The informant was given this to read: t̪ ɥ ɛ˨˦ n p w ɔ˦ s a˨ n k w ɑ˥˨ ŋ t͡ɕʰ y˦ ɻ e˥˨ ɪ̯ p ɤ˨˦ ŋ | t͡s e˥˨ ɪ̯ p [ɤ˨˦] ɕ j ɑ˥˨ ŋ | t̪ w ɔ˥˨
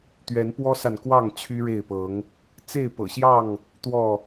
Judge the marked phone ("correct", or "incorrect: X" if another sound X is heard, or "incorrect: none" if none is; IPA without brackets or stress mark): incorrect: ɤ̰˨˩